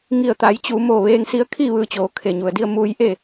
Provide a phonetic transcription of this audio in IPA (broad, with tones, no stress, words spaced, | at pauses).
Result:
ŋi˧˩ə̯t̪a˩˧jt͡ɕuː˩˧ mo˧˩ ʋeː˧ŋsi˧ə̯kʰi˥˨ ʋɯː˧t͡ɕoː˩˧ kʰe˩ɲu˩ə̯di˧ə̯ muː˧jʔe˥˨